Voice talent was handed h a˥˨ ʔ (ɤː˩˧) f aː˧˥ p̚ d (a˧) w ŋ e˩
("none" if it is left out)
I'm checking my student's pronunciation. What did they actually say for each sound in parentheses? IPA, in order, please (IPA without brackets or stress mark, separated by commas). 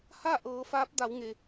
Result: ɤː˩˧, a˩˧